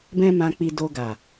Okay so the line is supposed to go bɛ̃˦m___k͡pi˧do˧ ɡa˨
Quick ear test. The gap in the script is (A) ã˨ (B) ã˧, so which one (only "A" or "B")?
B